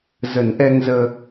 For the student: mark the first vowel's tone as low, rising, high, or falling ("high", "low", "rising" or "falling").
low